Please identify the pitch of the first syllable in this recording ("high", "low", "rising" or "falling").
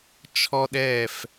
high